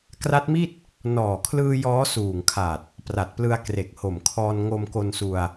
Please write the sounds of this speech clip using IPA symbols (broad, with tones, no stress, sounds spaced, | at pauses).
k r a˦˥ t̚ m i˥˩ t̚ | n ɔː˨˩ kʰ l ɯː˧ j ɔː˦˥ s uː˨˩ ŋ kʰ a˨˩ t̚ | p r a˨˩ t̚ p l ɯ˧ a̯ k r e˨˩ k̚ h o˨˩ m kʰ ɔː˧ n ŋ o˧ m k o˧ n s u˧ a̯